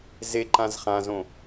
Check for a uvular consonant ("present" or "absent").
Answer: present